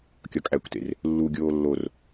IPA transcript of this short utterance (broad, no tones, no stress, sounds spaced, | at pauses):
kʲ ɒ kʼ æ kʷ t ḛ r | lː u ɡʲ oː lː o r